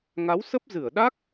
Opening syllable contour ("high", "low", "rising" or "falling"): rising